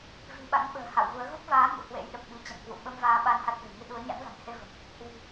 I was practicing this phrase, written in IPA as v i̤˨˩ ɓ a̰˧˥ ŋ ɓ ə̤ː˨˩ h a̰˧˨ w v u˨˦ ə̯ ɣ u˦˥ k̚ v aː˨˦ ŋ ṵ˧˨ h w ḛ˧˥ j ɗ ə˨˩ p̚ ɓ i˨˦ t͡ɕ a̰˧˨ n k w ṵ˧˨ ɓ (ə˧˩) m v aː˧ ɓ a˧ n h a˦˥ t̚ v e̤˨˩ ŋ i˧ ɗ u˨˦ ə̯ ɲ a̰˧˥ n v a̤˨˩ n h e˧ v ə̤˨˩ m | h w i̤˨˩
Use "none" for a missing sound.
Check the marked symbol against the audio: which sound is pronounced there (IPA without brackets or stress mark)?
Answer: ə˧